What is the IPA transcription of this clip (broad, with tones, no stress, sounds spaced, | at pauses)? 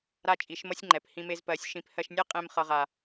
ɾ a˦ t͡ʃʼ i˨˦ ʃ m ʌ˦ sʲ ŋ͡ǃ ɛ˨ p h ĩ˧ m e˧ z p ɜ˨˦ sʲ ʃ ĩ˨˦ p h ɜ˧ ʃ nʲ ɛ˦ qʼ ẽ˧ m χ ʌ˨ ʁ a˨